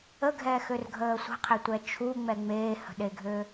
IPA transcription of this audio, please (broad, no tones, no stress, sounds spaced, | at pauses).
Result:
ə ɡʱ ɛː x ø r ɡʱ əː sʷ ə̤ qʰ e tʷ ɛ t͡ʃʰ u ŋ͡m ɛ ŋ͡m eː h ə̤ ɗ e ɡʱ ø